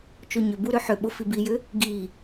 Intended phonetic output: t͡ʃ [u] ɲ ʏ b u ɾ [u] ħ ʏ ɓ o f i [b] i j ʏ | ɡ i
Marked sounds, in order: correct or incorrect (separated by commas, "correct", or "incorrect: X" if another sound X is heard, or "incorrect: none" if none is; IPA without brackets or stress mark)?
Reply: incorrect: o, incorrect: ʏ, correct